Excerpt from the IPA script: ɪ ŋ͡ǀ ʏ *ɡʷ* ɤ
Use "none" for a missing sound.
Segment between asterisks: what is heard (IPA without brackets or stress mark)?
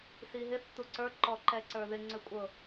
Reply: kʷʼ